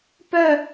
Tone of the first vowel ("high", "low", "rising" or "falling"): falling